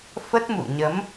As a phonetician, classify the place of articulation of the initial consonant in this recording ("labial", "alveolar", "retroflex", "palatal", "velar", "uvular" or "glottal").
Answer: labial